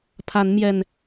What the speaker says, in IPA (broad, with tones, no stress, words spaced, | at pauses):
pʰa˨˦nmjɛ˨˩n